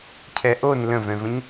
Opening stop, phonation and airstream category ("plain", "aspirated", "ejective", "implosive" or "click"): aspirated